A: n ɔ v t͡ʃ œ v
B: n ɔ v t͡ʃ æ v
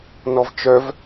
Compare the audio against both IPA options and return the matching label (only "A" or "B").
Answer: A